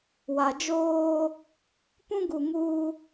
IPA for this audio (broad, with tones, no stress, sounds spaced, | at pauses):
w a˨ d͡ʒ oː˦ | p ũ˦ ɡ u˨ ŋ uː˦